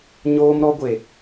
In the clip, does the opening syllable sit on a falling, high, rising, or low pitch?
high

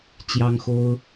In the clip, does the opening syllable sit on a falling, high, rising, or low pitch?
high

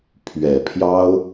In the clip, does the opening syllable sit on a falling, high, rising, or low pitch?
low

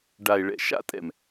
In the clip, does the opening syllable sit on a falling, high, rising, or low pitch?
low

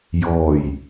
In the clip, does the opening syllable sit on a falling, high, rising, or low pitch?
low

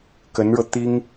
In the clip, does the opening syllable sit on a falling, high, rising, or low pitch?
rising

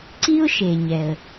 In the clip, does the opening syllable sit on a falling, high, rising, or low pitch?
high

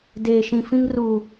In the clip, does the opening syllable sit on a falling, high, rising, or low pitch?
low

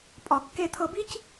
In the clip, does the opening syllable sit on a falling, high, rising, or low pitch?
low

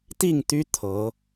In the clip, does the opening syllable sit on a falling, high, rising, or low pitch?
falling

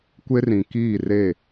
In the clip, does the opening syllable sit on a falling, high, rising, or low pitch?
high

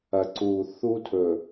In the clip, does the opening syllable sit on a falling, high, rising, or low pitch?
low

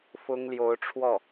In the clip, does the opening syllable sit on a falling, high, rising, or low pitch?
high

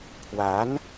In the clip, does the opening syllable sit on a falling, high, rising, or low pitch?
rising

